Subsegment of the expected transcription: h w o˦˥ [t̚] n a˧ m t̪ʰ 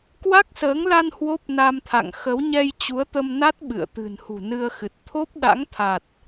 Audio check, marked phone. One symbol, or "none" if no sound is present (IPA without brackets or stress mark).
p̚